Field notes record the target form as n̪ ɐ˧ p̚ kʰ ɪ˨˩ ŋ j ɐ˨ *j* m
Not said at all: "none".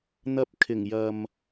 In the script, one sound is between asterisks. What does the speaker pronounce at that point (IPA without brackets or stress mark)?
none